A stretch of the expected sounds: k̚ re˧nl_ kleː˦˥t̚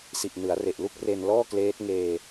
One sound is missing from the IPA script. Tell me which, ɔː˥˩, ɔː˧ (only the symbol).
ɔː˥˩